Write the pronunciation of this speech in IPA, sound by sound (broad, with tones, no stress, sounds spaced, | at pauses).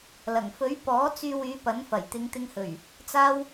l ɐ˨˩ ŋ f ɵ˨˥ ɥ p ɔː˨˥ t͡s yː˧ w yː˨˧ p ɐ˨˥ n f ɐ˨˩ j t̪ ɪ˨˧ ŋ t̪ ɪ˧ ŋ h ɵ˨˩ ɥ | t͡s aː˧ w